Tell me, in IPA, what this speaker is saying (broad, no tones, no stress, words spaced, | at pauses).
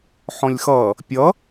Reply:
ħɔ̃lʲxʌ | pʲʌ